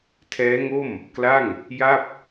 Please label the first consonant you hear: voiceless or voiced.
voiceless